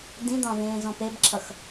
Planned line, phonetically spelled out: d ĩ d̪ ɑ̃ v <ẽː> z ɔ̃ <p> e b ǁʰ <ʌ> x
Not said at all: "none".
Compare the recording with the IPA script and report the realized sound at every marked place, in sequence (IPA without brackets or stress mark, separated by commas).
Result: ẽː, p, ʌ